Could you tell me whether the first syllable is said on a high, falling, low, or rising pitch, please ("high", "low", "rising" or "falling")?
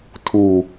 low